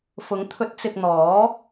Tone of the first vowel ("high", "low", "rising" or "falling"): rising